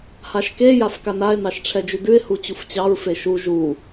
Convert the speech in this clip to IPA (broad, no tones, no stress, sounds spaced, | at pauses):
h a ʃ k e j a f k a n a ɪ̯ n ɑ ʃ ʈ͡ʂʰ ɛ d͡ʒ ʉ d ʉ ɪ̯ h u t͡ɕ u f t͡ɕ ɑ ɹ f e ʃ u ʒ u